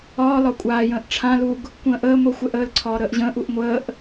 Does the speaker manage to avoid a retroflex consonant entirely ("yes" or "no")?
no